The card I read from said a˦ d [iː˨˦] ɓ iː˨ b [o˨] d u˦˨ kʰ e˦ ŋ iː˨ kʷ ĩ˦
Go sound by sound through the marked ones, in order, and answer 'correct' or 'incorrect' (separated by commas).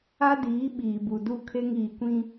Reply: correct, incorrect